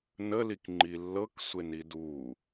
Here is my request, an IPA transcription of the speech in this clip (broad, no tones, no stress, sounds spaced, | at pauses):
n ə l i k ŋ͡ǃ i lː ɤ k sʷ e n i d u